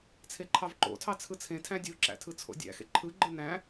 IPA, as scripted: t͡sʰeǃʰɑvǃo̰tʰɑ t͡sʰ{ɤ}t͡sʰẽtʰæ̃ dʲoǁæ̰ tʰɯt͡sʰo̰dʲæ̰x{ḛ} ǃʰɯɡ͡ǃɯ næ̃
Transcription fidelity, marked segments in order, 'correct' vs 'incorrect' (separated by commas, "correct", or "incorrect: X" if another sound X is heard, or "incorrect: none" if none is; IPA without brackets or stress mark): incorrect: ɯ, correct